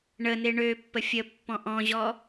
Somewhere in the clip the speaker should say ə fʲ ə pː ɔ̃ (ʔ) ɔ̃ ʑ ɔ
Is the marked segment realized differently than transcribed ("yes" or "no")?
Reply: no